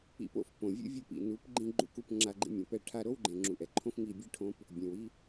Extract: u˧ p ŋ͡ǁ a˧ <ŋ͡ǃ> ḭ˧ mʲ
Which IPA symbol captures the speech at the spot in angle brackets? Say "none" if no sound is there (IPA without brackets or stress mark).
ɡ͡ǃ